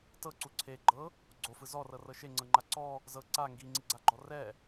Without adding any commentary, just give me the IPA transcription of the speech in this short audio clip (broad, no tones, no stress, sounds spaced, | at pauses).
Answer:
t ɤ ǀ u ǀʰ e ɡ͡ǃ ɤ | ɡ͡ǀ o f ɯ z ɔ r ɤ r ɤ ʃ e ŋ͡ǀ ɤ ŋ͡ǃ a ǀ ɔ | z ɤ ǀ a ŋ ɡ i ŋ͡ǀ i ɡ͡ǀ a ɡ͡ǃ ɔ r ɛ